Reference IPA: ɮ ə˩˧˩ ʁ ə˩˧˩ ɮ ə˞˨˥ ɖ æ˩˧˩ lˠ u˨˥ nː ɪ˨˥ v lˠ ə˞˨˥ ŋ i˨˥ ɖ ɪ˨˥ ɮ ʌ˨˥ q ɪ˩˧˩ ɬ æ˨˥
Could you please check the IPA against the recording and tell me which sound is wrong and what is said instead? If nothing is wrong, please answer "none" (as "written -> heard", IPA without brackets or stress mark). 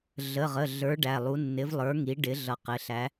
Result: none